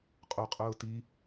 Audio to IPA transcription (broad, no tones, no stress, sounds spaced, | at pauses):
qʼ o qʼ ʊː t i